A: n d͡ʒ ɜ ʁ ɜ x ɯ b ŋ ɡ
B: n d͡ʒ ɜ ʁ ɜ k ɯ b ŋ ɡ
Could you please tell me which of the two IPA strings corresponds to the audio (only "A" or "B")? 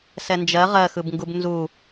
A